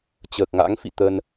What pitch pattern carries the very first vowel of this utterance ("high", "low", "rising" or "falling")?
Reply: low